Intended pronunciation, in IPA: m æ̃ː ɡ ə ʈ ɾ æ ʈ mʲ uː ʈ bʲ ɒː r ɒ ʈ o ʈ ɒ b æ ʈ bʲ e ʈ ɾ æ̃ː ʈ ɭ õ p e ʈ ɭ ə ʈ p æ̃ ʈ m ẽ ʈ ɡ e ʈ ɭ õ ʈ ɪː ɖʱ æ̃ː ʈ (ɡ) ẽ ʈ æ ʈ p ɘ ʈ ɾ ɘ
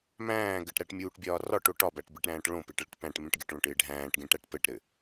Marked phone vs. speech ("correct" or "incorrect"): correct